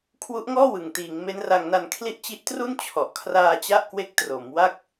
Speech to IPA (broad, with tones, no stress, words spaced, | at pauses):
kʰwu˦˥ʔŋɔː˥˩wɯ˨˩ŋ tiː˩˦ŋ me˦˥nra˧ŋna˧nkʰli˥˩ʔ t͡ɕi˦˥ʔtru˥˩n t͡ɕʰɔ˨˩ʔ kʰraː˧t͡ɕa˦˥ʔ kwe˦˥k̚tro˩˦m wa˥˩k̚